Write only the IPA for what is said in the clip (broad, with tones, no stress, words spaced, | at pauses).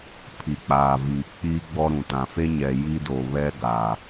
pʰi˨k͡paː˨ viː˨k͡piː˦ɡ͡bɔ˦ɾũ˨ tã˨fe˦ɲɛ˨ ji˦do˨βɛ˦ ɡaː˨